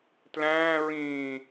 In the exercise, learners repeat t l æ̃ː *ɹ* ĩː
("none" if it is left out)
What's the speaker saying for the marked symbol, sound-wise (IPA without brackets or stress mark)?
ɹ